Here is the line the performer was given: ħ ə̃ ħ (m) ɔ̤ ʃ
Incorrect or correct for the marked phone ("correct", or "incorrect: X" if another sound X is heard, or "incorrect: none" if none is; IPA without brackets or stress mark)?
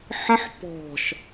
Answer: incorrect: p